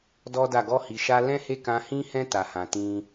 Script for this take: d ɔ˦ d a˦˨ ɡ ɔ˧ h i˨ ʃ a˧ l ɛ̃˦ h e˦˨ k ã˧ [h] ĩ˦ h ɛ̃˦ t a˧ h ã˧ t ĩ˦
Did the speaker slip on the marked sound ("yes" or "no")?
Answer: no